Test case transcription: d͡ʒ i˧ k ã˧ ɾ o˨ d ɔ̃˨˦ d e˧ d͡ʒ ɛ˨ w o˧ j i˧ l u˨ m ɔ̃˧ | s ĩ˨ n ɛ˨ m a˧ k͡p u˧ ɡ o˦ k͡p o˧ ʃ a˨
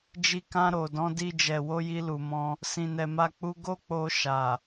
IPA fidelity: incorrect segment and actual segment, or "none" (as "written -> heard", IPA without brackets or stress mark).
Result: e˧ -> i˧